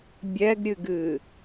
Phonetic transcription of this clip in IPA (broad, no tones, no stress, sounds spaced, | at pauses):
bʲ ɛ ɡ ɾʲ ɨ ɡ ɨ